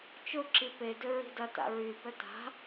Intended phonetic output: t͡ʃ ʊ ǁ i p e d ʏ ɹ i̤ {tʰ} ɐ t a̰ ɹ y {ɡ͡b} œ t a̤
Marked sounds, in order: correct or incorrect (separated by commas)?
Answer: incorrect, incorrect